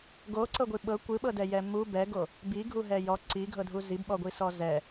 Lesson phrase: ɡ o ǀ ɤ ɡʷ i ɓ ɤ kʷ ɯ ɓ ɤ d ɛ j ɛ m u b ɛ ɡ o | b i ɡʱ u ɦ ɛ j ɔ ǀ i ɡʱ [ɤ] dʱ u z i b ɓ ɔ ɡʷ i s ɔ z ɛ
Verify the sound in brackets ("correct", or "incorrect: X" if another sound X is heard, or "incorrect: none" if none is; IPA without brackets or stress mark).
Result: correct